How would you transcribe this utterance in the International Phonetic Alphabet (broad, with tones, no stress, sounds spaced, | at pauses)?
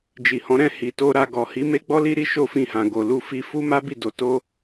d͡ʒ i˨ h ɔ̃˨˦ ɾ ɛ̃˧ h i˨ t o˧ ɾ a˧ ɡ ɔ˨ h i˨˦ m e˦ ɡ͡b ɔ˦ l i˦ ɾ i˦ ʃ o˦˨ f ĩ˧ h ã˨ ɡ o˨ l u˧ f i˧ f u˦ m a˦ b i˦˨ d o˨˦ t o˦